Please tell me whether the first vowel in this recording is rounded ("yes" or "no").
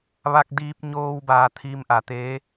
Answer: no